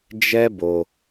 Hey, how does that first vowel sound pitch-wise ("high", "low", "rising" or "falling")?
high